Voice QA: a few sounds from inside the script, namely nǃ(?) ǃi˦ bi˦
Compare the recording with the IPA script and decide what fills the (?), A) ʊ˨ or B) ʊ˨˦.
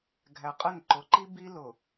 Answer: B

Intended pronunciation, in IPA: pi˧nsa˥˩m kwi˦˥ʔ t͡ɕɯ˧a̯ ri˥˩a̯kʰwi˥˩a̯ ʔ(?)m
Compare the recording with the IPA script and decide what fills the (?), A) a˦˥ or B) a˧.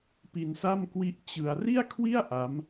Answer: A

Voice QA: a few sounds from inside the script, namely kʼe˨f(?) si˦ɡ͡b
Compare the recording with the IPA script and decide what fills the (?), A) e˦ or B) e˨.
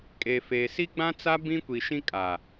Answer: B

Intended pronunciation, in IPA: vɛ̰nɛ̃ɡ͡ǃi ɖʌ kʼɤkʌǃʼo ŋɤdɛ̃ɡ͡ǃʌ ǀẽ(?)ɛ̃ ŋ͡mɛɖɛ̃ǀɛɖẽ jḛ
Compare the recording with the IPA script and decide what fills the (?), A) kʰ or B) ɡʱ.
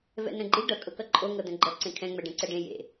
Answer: A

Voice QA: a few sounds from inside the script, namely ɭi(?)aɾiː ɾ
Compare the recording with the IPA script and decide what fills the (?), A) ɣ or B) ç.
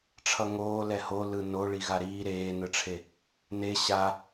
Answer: A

